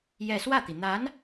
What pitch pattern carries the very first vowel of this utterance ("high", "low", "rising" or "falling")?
falling